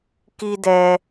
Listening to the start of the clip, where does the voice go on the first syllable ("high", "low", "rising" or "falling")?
high